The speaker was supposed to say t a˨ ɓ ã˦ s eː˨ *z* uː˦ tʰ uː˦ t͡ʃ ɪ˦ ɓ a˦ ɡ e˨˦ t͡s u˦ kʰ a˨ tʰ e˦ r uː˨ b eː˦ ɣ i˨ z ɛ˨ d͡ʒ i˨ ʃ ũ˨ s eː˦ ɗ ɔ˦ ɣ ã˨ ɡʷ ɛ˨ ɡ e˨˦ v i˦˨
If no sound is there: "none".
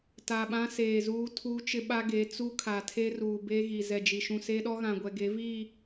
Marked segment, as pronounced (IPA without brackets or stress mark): z